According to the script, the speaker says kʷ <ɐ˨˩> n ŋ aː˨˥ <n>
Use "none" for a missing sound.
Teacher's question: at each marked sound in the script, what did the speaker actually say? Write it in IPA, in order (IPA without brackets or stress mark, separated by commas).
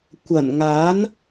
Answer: ɐ˨˩, n